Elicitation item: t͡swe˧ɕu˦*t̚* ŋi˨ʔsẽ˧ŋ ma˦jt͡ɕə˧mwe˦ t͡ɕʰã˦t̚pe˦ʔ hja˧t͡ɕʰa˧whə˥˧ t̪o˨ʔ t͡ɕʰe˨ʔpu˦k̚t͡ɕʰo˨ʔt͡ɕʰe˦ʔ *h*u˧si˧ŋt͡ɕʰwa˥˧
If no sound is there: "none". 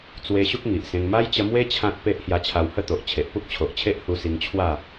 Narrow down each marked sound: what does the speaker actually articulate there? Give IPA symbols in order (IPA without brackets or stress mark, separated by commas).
k̚, h